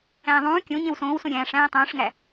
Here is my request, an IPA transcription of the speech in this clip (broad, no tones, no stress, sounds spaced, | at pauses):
æ̃ː ðˤ ũː kʲ õ ɲ ẽ w s õː w s õ ɾʲ æ̃ː ʂ æ̃ː tˤ õː ʂ ŋ æ